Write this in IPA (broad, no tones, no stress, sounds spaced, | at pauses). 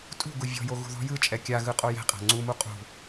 tʼ ṳ ɡ u vʲ ɔ̤ j o ɣ ṳ ð ɔ̤ j ɯ t͡ʃʼ ɛ kʲ a ɣ ɯ qʼ o j ɛ̤ qʼ a̤ ŋ͡ǀ u m u qʼ ṳ